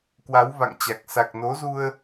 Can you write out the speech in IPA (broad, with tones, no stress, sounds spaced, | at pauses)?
k w a˨˦ w v a̰˧˨ ŋ t͡ɕ a˨˩ k̚ s a˨˩ k̚ n o˨˦ z u˧ ə̯